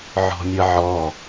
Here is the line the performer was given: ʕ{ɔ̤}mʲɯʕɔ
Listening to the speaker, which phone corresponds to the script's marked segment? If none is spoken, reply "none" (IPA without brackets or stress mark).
ɔ̤